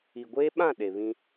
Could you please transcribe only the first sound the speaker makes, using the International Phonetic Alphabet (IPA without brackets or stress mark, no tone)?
i